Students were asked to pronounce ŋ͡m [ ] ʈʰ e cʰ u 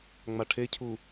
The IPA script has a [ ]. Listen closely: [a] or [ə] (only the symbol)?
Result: a